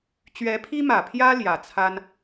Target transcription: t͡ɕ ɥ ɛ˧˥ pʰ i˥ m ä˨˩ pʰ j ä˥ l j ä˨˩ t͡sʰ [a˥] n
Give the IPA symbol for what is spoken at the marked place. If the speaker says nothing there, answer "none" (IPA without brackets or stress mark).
a˥